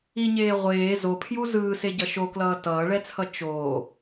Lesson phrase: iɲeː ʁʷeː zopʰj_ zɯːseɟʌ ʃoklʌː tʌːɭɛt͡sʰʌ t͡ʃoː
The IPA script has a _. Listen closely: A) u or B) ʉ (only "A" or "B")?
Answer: A